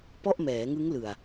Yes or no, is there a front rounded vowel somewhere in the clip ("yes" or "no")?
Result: no